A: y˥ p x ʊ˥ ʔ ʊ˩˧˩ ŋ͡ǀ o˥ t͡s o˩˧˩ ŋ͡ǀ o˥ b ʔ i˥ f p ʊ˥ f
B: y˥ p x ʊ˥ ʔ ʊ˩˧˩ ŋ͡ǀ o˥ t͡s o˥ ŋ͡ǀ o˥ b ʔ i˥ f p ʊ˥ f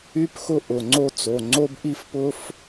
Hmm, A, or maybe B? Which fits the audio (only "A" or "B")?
A